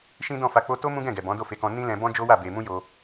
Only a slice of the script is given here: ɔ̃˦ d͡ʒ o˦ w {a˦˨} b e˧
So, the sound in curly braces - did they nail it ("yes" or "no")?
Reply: yes